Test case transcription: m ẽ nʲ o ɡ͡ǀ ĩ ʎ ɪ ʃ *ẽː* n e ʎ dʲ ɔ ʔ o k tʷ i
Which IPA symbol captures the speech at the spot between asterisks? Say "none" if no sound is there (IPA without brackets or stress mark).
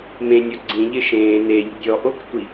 ẽː